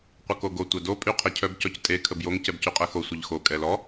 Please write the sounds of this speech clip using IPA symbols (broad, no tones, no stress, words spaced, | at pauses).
qʷəkoɡo tʷɛdo pʼyqʰecʰœb cɔctʼe kʰəbjoŋ cɛbcyqʼɛxo sʷəʎxo kʼɛlɔ